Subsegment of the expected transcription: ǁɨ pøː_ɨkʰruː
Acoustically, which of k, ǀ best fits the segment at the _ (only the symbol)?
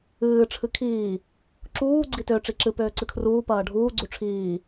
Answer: ǀ